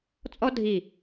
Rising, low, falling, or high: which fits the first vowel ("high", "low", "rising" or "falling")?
high